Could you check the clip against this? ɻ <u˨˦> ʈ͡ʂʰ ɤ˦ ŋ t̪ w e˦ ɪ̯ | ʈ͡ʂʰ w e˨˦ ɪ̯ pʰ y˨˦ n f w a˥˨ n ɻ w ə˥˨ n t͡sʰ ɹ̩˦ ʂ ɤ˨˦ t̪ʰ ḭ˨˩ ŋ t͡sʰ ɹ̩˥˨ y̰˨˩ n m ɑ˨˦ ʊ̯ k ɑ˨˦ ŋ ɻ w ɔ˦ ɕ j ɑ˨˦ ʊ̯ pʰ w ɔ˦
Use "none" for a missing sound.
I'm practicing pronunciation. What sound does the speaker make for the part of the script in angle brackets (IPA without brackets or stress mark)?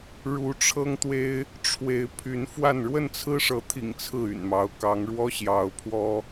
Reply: u˨˦